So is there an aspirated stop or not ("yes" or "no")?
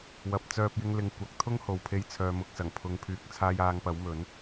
yes